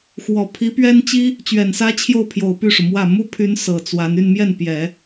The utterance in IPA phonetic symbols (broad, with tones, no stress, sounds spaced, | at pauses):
x w ɔ˨˩ pʰ i˧˥ p ɥ ɛ˥ n t͡ɕ i˥ | t͡ɕ ɥ ɛ˨˩ n s ä˥ t͡ɕʰ j o˥˩ ʊ̯ pʰ j o˨˩ ʊ̯ p y˥˩ ʂ u˩ m w ä˥˩ m u˥ pʰ y˧˥ n s ɤ˨˩ t͡s w a˧˥ n y˥˧ n m j ɛ˥˩ n p j ɛ˨˩˦